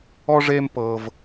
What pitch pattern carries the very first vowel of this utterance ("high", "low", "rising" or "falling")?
high